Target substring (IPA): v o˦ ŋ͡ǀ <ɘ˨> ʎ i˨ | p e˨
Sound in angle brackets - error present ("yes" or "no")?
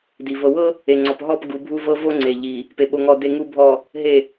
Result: yes